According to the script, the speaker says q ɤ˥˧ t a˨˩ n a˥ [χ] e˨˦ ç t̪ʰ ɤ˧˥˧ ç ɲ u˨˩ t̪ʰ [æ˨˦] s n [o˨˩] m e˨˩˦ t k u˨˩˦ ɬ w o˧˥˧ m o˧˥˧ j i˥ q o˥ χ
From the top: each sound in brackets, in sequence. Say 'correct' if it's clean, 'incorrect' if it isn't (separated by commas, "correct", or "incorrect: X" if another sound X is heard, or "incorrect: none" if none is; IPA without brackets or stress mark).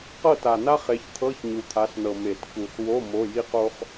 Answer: correct, incorrect: a˨˦, incorrect: ɤ˨˩